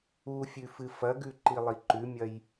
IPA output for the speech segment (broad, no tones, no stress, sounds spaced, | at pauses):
u fʲ ʉ f ɨ f ɐ ɡ ʉ ǃ i lˠ i ǃ ʉ mʲ ɐ j